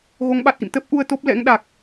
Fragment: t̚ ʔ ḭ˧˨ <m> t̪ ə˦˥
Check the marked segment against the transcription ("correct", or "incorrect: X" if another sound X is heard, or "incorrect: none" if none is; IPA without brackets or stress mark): correct